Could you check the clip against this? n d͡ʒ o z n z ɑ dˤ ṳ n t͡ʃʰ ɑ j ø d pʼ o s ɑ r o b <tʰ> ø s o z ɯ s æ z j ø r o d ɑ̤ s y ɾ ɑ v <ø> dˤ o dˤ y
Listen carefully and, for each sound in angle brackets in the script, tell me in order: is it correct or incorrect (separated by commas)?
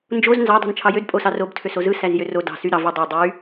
correct, incorrect